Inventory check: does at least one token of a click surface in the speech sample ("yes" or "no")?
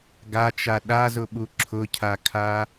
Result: yes